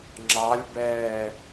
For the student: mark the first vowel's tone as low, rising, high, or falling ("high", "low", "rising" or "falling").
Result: rising